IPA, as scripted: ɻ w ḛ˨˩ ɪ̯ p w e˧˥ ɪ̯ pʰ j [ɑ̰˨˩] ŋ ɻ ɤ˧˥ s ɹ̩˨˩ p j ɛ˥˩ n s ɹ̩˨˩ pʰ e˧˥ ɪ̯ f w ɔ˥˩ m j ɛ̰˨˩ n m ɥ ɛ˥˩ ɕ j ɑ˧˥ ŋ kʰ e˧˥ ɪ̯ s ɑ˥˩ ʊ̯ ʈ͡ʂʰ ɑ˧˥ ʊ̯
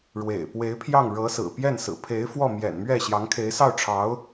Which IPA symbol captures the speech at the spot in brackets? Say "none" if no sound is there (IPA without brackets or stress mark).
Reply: ɑ˥˩